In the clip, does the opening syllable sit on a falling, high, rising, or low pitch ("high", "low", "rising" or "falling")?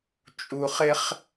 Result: low